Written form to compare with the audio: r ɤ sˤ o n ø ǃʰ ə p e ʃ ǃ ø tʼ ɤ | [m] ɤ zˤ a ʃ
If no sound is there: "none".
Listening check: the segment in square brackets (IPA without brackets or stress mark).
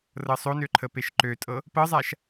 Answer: p